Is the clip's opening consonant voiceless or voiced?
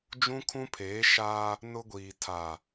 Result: voiced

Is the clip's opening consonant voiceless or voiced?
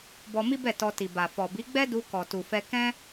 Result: voiced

